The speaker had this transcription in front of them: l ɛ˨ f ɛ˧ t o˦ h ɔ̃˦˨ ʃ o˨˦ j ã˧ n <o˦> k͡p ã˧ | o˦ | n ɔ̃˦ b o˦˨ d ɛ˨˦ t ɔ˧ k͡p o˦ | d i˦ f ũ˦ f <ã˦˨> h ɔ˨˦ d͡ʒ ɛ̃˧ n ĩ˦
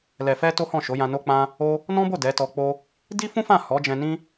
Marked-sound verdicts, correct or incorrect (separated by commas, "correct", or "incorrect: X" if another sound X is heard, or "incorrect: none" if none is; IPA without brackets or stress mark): incorrect: o˧, correct